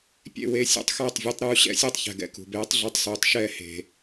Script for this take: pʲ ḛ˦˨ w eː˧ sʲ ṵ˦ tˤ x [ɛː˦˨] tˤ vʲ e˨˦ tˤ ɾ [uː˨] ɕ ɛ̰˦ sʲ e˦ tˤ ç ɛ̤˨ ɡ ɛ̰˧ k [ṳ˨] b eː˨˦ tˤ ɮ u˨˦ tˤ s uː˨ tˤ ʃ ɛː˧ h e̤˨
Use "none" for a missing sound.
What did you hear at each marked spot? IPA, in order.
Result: ɛː˦˨, uː˧, ṳ˨

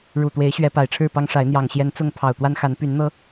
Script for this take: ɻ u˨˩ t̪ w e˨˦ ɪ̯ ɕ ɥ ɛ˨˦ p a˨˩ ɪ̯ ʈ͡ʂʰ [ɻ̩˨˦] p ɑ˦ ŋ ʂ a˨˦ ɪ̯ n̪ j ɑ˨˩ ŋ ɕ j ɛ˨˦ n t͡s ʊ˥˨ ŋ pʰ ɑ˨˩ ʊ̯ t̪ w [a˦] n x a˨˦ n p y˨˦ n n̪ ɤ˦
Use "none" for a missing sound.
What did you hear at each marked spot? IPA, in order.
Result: ɻ̩˥˨, a˦

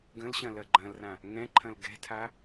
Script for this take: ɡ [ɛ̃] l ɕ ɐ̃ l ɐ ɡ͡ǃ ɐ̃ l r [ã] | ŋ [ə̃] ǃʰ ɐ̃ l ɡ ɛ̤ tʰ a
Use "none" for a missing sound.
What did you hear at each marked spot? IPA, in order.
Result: ə̃, ã, ɛ̃

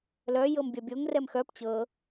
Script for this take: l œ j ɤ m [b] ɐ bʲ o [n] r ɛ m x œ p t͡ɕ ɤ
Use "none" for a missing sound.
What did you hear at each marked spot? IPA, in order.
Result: bʲ, ŋ

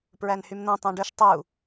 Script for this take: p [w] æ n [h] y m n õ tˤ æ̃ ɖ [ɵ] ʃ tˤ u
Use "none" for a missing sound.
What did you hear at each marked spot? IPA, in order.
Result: ɹ, h, ɵ

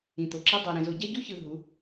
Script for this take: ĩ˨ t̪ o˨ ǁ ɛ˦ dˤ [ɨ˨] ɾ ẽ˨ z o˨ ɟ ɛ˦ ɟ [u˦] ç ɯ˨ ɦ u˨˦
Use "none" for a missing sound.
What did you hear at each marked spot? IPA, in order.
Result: ɛ˨, u˦

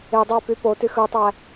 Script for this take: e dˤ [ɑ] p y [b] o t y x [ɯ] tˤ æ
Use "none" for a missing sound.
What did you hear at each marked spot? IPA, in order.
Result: ɑ, p, ɯ

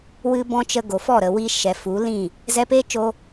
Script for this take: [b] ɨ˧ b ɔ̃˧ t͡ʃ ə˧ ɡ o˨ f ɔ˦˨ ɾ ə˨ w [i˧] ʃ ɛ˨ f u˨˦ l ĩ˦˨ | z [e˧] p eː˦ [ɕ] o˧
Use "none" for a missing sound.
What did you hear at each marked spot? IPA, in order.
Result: w, i˧, ɛ˧, t͡ʃ

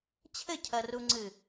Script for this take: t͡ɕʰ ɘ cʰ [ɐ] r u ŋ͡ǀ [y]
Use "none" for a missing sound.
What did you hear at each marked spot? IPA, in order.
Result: ɐ, ɨ

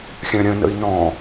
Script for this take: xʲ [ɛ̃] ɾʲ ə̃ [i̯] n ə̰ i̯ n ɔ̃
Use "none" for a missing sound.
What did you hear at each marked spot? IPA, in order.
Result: œ̃, none

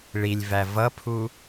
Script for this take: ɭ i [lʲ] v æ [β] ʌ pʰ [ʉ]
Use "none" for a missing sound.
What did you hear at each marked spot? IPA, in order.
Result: lʲ, v, u

